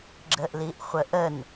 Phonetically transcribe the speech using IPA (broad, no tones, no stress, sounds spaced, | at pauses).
ɡ͡ǁ ə ʔ l i ʔ χʷ ə ʔ ə n